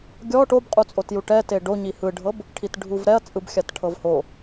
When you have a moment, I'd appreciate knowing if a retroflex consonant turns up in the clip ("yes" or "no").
yes